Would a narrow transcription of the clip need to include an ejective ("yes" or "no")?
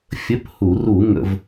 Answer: no